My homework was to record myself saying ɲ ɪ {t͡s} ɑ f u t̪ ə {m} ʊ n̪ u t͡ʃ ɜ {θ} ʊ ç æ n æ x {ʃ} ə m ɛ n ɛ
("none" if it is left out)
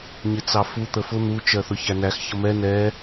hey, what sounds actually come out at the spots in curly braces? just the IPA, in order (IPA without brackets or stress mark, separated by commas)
t͡s, f, θ, ç